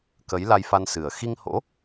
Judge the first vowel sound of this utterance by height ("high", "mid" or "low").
mid